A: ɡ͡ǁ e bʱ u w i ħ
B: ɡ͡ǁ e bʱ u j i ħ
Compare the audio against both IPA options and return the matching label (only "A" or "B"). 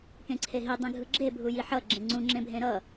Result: B